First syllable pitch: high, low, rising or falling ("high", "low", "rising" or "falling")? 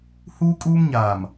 high